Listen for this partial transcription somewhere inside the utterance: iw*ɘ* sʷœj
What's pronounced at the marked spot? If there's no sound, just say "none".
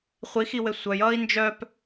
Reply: ɘ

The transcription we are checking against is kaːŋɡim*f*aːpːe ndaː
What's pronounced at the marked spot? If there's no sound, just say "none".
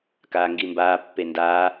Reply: b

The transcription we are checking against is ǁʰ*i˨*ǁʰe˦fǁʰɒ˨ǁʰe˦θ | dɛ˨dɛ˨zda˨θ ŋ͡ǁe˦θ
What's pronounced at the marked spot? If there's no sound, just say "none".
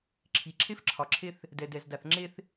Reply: i˨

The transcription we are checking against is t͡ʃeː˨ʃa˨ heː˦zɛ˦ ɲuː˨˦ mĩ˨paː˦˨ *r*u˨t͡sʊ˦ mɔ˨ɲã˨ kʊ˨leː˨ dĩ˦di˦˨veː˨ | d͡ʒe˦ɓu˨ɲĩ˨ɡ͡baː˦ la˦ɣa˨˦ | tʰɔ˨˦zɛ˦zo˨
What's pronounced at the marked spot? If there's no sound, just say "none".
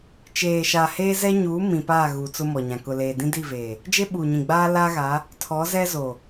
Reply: ɣ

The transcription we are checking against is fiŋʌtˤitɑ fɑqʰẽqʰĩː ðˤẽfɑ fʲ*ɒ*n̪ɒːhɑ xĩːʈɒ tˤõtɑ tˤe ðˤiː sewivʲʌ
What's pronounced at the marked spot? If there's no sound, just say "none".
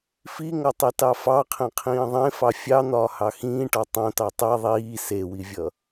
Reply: ɑ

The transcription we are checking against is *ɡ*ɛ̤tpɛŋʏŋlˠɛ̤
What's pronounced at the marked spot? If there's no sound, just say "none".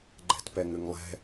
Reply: ɡ͡ǃ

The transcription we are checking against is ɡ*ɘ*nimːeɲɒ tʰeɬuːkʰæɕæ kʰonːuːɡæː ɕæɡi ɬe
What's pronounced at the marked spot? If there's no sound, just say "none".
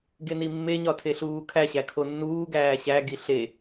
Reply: e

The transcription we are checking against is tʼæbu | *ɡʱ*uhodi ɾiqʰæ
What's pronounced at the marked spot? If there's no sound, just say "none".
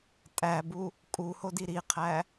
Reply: kʼ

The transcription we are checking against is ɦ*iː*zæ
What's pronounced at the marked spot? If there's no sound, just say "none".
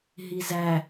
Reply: i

